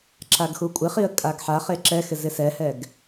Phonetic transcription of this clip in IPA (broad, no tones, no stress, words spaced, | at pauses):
ǁaɡxukʷʼɪχiə̯ kʼaɡħaχe ǁɛxɪ zɪsɛhɛɡ